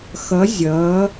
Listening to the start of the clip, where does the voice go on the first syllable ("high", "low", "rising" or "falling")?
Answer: rising